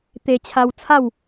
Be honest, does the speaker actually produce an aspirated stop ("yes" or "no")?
yes